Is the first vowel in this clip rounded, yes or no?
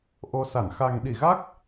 yes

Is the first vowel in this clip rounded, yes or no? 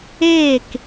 no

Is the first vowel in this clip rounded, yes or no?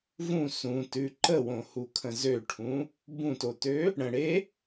yes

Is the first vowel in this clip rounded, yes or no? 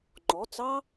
yes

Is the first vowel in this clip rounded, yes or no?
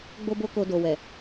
yes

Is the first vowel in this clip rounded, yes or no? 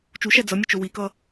yes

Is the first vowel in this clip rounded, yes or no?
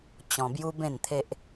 yes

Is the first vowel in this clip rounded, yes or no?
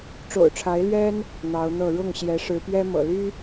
yes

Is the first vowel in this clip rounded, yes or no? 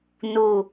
yes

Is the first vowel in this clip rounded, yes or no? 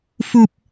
yes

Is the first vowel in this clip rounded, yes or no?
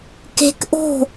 no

